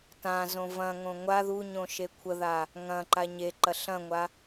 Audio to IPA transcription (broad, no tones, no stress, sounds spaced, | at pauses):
t ã z õ v ɐ̃ ŋ õ ŋʷ a ð u ɲ õ ʃ e kʷʰ ə ð a | ŋ ɐ̃ ǃ a ɲ e ǃ ɐ ɬ ɐ̃ ŋʷ a